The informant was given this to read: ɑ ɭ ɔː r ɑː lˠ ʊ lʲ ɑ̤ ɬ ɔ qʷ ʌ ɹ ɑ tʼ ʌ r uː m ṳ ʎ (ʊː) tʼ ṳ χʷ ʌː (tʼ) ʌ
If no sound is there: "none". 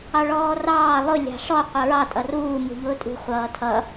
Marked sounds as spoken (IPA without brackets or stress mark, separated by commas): ʊː, tʰ